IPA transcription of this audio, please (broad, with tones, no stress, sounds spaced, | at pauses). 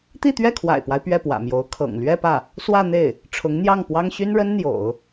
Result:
t̪ i˥˧ t̪ ɥ ɛ˥˩ kʰ w a̰˨˩ ɪ̯ p w a˦ ɪ̯ p ɥ ɛ˥˩ p w ä̰˨˩ m j o˧˥ ʊ̯ kʰ ɤ̰˨˩ ŋ l ɥ ɛ˥˧ p ä˥˩ | s w ä˥˧ n̪ e˥˩ ɪ̯ | ʈ͡ʂʰ ʊ˧˥ ŋ n̪ j ɑ˥˩ ŋ p w ɑ˥ ŋ ɕ y˥ n ɻ ə˥ n n̪ j o̰˨˩˦ ʊ̯